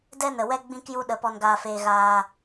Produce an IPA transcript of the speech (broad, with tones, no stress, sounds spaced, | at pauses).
d ɛ˦ n ə˨ w ɛ˦ ɡ͡b ĩ˧ k j u˧ ɗ ə˨˦ p ɔ˧ n ɡ aː˧ f eː˧ ɣ aː˧